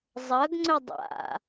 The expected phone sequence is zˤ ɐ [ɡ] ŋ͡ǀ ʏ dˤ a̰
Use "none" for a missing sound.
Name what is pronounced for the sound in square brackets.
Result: ɡ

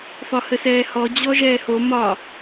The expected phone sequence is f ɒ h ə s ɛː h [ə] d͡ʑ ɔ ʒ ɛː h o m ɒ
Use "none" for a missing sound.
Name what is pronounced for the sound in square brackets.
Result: ɔ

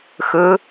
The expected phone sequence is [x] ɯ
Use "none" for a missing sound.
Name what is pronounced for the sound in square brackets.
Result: x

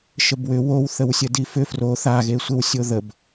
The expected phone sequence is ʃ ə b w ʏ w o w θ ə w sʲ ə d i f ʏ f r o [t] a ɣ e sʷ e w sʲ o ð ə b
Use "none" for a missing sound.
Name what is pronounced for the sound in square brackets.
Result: θ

